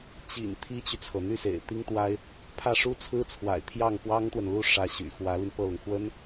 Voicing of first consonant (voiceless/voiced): voiceless